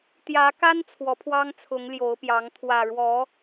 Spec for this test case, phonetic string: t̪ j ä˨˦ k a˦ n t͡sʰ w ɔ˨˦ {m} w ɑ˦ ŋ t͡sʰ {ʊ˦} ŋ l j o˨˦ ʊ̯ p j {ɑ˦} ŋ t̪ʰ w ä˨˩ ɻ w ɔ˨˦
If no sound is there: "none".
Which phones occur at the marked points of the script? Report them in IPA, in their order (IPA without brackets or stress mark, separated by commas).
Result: pʰ, ʊ˨˦, ɑ˨˦